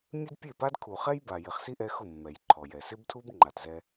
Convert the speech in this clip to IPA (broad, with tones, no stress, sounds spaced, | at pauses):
mʲ e˦ d pʲ e˦˨ p a˦ d kʰ u˨ χ ɛ˦ j b a˨ j ɪ˨ χ s i˦ ʔ ɛ˧ x ʊ˦˨ mː ɛ˨ j ǃʰ ɔ˨ j ɛ˨ s ɪ˦ b tʰ u˦ b ŋ͡ǃ a˨ t z ɛ˧